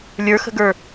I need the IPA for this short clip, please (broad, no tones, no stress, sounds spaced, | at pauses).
lʲ ə˞ x ə̤ ɡ ə˞